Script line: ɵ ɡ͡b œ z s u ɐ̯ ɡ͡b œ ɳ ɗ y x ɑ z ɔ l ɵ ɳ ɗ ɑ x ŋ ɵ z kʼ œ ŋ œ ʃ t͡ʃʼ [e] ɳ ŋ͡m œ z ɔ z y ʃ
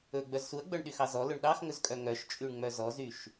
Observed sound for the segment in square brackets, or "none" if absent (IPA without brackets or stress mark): y